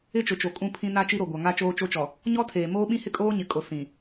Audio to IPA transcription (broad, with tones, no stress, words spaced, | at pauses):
ɪ˦t͡ʃʊ˨t͡ʃo˨ kʼũ˦pʰĩ˦ na˦t͡ʃi˦ɾo˨ ɡʷa˨ŋa˦ t͡ʃoː˦t͡ʃo˦t͡ʃɔ˨ | ɲɔ˦tʰeː˨ moː˦ɓĩ˦hɪ˦kʼoː˦ ɲɪ˨˦kʼo˨ sĩ˨